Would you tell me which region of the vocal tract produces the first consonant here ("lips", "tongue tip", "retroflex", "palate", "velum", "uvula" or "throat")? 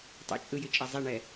tongue tip